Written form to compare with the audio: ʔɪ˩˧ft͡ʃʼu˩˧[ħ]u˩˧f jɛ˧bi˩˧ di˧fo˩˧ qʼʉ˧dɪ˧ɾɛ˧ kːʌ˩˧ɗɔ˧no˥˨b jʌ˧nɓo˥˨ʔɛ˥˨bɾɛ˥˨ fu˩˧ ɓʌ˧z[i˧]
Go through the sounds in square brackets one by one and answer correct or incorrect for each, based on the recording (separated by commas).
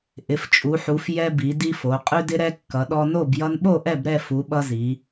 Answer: correct, incorrect